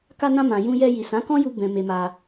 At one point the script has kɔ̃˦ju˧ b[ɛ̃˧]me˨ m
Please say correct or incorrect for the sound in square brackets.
incorrect